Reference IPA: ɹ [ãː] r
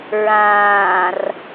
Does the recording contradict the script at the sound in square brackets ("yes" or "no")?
no